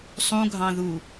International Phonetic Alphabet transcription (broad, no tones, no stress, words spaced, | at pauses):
sˤũɡʱɑ̃ðu